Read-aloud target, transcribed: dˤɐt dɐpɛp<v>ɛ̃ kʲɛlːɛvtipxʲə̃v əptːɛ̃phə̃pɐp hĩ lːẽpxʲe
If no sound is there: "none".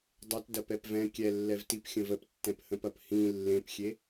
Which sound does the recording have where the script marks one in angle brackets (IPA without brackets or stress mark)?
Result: v